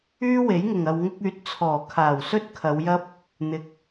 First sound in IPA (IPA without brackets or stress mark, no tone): yː